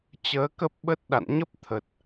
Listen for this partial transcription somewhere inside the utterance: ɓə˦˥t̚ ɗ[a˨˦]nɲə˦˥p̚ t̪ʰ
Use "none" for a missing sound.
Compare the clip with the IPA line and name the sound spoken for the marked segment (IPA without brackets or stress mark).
a̰˧˨